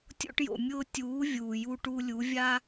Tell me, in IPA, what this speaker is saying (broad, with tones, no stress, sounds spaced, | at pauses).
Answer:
tʲ o̰˧ ʈ j o̰˨ mʲ ʊː˧ tʲ uː˨˦ vʲ uː˨ j u˧ ʈ u˧ lʲ u˨˦ vʲ a˦